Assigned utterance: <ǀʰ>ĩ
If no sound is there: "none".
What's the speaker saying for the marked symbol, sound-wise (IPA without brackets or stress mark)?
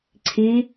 ǀʰ